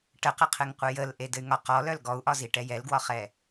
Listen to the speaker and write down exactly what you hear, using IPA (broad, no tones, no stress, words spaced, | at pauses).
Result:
ʈəqəqʰɘŋqʷɨ jəlʔedɘy̯ ŋɒq ɔlœl ɡɔu̯ʔɒziʈɛ jɛlɡwɒχɛ